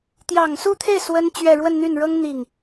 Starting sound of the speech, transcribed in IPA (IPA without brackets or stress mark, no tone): t̪